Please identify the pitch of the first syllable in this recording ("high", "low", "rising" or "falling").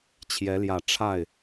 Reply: rising